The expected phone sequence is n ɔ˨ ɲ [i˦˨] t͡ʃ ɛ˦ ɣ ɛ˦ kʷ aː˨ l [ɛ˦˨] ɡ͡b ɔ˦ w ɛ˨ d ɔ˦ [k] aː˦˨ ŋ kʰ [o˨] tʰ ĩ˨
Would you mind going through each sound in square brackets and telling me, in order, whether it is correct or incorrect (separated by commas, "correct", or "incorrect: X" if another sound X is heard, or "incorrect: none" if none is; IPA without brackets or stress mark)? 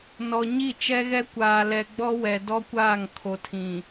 correct, incorrect: ɛ˨, incorrect: kʷ, correct